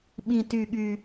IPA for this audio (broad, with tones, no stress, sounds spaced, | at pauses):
ɓ ĩ˨˩ t y˨˩ ɠ y˨˩